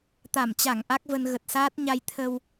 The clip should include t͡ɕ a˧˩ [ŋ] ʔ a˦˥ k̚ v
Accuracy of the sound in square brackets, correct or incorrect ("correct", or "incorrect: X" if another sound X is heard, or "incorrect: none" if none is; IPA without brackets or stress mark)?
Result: correct